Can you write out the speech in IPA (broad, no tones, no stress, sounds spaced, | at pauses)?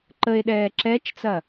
ǃ ə e̯ ɗ ɛː ǁ ɛ t͡ʃ t͡s ɐ